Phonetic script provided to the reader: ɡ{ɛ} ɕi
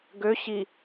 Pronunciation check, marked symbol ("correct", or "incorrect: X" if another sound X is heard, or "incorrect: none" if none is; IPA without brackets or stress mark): incorrect: ø